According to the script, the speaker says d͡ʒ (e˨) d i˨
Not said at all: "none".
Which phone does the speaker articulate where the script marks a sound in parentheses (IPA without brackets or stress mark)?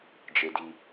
e˨